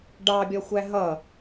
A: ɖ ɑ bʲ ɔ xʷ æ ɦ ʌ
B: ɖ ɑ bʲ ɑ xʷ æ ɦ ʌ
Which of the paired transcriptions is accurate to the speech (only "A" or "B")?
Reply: A